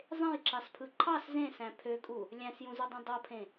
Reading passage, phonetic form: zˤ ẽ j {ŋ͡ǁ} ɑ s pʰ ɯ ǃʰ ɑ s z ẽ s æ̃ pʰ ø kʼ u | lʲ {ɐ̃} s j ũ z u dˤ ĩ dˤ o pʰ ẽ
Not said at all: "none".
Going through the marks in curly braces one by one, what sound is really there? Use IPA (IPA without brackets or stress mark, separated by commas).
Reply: ǁ, æ̃